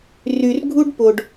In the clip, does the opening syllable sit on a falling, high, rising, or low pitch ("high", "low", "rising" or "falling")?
low